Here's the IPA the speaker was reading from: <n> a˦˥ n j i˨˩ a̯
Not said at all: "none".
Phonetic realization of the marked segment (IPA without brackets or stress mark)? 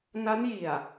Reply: n